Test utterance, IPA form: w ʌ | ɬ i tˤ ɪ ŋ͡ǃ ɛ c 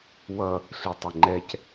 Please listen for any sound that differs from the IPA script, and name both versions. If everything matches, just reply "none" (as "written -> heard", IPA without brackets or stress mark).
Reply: none